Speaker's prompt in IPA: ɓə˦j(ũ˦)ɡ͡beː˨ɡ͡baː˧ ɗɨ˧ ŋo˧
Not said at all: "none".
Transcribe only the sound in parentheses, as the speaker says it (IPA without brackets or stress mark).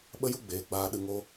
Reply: u˦